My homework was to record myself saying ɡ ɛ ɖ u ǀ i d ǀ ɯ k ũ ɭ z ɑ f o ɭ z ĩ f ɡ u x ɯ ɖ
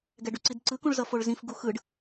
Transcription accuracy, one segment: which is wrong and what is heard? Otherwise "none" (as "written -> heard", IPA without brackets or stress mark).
ɑ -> ʌ